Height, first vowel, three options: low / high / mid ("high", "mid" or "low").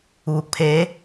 high